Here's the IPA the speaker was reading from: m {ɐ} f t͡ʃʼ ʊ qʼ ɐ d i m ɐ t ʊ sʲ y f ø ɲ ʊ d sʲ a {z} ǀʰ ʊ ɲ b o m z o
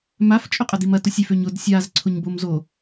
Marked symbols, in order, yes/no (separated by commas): no, yes